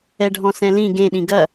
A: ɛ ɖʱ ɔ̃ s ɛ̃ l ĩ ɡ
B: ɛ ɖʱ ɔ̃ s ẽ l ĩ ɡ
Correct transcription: A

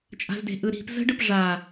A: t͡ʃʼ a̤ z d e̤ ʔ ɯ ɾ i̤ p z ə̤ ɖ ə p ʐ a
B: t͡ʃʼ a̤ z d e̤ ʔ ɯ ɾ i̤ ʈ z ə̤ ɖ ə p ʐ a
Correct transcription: A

